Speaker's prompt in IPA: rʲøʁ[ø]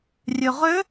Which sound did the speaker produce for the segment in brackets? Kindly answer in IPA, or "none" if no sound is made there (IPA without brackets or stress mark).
ø